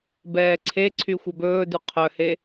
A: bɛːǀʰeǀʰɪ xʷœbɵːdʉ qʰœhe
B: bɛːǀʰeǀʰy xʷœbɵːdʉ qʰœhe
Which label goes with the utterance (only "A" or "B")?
B